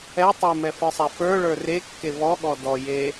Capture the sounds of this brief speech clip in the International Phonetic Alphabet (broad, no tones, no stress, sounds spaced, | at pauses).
ɛ tˤ e m ɛ f ə˞ sˤ ɛ f ə˞ ɭ ə˞ r e kː e v ɔ ɠ ɔ d ɔ j e